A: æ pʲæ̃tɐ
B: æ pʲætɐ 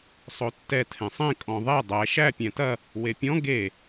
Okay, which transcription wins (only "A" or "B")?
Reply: A